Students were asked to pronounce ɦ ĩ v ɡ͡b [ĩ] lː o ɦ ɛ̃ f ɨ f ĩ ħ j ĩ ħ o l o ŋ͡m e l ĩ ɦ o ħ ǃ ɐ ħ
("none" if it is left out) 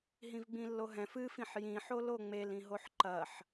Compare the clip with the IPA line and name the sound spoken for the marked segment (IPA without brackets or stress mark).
ĩ